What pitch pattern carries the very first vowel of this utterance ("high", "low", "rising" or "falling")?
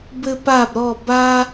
high